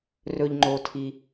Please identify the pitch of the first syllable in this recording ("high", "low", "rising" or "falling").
low